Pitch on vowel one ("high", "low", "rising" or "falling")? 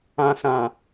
low